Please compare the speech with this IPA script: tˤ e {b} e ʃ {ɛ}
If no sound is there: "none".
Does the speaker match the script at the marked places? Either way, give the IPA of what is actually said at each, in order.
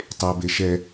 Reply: b, ɛ

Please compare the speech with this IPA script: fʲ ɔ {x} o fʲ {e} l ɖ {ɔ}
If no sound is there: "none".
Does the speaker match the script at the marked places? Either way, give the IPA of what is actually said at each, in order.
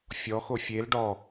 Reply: x, e, ɔ

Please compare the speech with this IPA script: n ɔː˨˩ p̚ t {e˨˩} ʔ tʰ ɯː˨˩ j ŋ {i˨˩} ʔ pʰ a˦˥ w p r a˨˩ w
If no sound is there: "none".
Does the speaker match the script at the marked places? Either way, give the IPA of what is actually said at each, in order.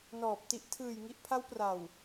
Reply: i˨˩, i˨˩

